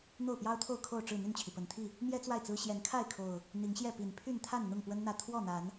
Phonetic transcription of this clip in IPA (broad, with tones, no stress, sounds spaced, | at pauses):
n̪ o˥˨ ʊ̯ p j ɑ˦ ʊ̯ t̪ʰ o˥˨ ʊ̯ kʰ o˥˨ ʊ̯ ʈ͡ʂ ɻ̩˥˨ n̪ y˥˨ n t͡ɕʰ i˩ p ə˨˩ n t̪ʰ i˥˨ | m j ɛ˦ t͡s w a˥˨ ɪ̯ t͡s ɹ̩˦ ɕ j ɛ˨˦ n kʰ a˥˨ ɪ̯ kʰ o˨˩ ʊ̯ | n̪ i˨˦ ŋ ɕ j ɛ˥˨ p i˨˩ n pʰ y˥˨ n t̪ʰ a˥˨ n n̪ ʊ˥˨ ŋ p w ə˦ n n̪ ä˥˨ t̪ʰ w ɔ˥˨ n̪ a˨˦ n